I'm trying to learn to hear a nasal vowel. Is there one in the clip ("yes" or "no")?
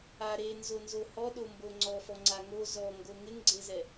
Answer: no